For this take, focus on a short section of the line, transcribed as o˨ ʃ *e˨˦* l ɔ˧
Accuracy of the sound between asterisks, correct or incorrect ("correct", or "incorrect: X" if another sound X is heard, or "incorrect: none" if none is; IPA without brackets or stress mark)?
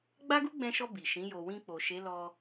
correct